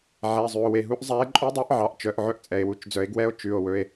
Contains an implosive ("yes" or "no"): no